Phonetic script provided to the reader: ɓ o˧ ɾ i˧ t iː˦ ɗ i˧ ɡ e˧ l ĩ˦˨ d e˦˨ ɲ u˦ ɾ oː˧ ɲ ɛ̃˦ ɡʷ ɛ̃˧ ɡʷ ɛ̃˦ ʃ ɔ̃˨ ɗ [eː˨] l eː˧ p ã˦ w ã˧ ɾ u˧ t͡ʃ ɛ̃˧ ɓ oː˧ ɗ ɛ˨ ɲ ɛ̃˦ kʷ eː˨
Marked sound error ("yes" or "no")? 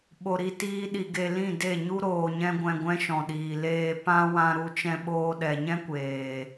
yes